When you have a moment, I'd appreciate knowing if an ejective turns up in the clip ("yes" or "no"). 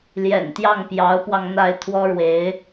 no